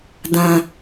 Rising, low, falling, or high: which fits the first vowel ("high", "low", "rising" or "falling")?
high